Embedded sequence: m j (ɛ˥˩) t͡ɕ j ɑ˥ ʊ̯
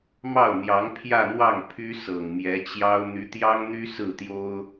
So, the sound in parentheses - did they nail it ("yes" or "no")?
no